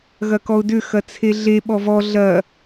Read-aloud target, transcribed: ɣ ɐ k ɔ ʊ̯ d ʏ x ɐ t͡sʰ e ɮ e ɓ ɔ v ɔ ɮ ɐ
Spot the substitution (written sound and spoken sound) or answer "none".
none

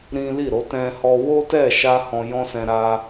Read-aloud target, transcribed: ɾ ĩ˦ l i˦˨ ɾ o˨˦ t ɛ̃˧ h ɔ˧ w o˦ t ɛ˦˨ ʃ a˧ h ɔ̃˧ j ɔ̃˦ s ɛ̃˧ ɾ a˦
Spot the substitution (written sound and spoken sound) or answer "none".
none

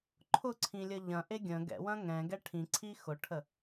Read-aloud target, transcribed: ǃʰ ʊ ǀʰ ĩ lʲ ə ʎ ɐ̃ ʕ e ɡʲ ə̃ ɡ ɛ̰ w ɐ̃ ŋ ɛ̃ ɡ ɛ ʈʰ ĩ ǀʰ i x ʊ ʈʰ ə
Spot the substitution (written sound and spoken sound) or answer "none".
ʕ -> ʔ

